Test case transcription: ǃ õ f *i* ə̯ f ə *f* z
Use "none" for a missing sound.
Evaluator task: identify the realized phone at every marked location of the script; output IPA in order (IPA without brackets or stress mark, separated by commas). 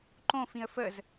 ĩ, none